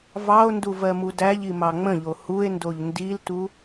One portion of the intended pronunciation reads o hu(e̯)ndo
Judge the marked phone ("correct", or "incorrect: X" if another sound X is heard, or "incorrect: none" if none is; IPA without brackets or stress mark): correct